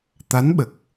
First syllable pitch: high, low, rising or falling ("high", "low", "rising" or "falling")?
rising